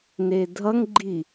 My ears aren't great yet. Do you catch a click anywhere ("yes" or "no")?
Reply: yes